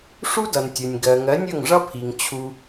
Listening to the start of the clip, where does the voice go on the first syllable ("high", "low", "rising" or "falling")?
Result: high